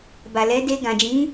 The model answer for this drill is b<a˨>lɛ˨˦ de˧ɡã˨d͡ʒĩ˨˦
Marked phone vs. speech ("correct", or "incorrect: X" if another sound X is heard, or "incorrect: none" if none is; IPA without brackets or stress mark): correct